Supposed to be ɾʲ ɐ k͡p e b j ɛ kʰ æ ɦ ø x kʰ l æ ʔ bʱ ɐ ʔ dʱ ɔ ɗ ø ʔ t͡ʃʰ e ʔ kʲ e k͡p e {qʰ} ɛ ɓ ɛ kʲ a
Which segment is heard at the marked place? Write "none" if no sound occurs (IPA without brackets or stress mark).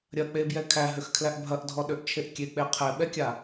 qʰ